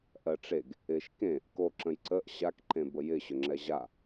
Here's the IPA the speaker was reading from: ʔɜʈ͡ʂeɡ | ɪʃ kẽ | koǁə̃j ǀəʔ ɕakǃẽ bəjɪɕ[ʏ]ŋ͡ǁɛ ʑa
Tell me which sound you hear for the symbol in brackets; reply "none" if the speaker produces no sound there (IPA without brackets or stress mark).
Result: ʏ